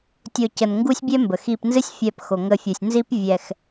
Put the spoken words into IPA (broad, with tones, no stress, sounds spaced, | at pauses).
tʲ o˨ c ə˩ n ŋ ɡ u˦ sʲ bʲ ɛ˦ m b ə˩ x i˨ p n z ɨ˦ sʲ fʲ ɛ˨ p x o˩ ŋ ə˨ fʲ u˩ sʲ n z i˥ p vʲ ɛ˨ x